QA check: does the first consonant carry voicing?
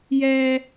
yes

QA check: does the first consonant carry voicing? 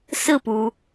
no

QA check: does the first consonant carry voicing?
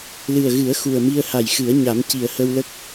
yes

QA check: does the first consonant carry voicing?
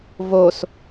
yes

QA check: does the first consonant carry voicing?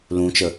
yes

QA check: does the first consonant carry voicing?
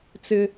no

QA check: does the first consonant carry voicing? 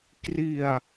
no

